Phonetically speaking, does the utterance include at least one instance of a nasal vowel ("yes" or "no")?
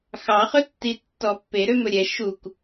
no